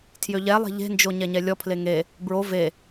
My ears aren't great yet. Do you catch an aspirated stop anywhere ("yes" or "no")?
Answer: yes